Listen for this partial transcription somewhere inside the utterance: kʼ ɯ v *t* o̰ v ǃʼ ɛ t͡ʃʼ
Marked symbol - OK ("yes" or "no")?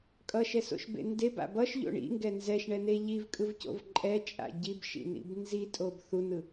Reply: no